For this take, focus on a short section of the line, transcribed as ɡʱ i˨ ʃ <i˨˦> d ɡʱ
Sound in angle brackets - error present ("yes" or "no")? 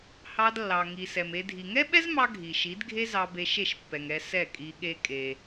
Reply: no